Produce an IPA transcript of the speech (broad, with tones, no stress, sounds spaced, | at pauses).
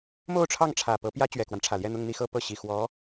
m o˥˧ ʊ̯ ʈ͡ʂʰ ɑ˥˩ ŋ ʈ͡ʂʰ ä˨˩ p ɤ˧˥ p j ä˥ t͡ɕ ɥ ɛ˨˩ k w a˦ n ʈ͡ʂʰ ä˨˩ l j ɛ˥˧ n̪ ʊ˥˧ ŋ n̪ i˥˧ x ɤ˥˧ p ɤ˥˩ ɕ i˨˩ x w ɔ˧˥